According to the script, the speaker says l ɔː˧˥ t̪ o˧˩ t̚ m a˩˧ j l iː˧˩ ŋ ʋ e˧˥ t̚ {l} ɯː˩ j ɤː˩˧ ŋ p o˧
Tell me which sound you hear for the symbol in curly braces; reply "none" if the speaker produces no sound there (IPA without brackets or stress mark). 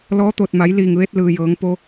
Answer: l